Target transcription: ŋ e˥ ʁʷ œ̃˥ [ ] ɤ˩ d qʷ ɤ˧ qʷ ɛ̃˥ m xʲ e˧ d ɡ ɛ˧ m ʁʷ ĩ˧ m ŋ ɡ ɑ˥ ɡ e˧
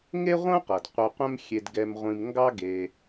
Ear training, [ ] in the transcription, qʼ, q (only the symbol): q